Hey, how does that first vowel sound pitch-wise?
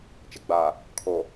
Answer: low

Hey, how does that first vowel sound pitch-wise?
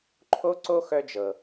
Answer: high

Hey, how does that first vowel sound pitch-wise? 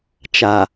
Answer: low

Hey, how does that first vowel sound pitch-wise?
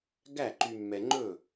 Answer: falling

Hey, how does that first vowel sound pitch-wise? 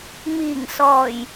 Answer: low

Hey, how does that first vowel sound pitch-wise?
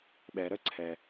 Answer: low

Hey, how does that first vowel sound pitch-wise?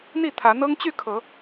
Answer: falling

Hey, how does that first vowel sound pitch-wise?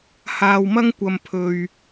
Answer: low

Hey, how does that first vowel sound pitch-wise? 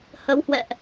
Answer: rising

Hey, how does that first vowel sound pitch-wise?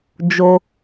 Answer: low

